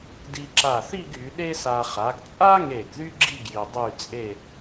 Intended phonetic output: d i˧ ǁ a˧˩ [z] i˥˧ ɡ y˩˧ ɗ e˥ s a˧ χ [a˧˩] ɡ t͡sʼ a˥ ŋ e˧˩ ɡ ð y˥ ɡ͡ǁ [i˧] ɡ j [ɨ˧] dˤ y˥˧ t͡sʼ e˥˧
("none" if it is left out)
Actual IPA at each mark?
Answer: θ, a˩˧, i˥˧, i˧

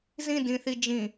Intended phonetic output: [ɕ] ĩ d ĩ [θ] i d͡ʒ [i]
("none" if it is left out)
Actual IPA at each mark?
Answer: z, θ, ĩ

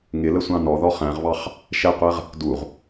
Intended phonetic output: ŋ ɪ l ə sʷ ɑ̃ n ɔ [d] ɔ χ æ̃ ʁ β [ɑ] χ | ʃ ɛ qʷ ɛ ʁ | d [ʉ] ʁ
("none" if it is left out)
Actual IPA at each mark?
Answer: ð, ɑ, u

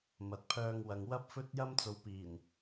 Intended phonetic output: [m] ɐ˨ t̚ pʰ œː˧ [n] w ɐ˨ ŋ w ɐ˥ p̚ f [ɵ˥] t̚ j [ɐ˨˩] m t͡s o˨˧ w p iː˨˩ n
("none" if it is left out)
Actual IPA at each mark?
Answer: m, ŋ, ɵ˥, ɐ˥

